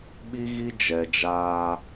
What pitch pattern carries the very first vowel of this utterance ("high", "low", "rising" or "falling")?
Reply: high